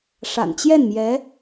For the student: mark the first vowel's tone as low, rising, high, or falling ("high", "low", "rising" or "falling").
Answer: low